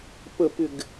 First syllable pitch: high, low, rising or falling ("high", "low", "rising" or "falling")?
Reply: low